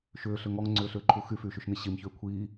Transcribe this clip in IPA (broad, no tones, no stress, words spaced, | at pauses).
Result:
ʃʏːɬʏ ŋɔŋŋ͡ǀʏːɬʏːǃʰu xyfyːʃyʃni ɕimçʏː kʷʰiː